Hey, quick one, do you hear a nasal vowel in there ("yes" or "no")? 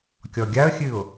no